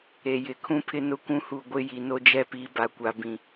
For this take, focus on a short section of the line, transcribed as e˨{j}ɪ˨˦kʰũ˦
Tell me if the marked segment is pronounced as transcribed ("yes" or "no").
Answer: yes